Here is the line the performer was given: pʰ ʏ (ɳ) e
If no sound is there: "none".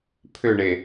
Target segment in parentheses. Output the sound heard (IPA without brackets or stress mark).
ɳ